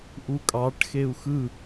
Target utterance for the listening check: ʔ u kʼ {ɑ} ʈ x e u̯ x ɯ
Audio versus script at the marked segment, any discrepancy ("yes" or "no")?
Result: no